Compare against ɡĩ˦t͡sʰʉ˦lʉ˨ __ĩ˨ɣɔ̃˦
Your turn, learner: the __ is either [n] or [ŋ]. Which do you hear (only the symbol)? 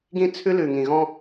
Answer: ŋ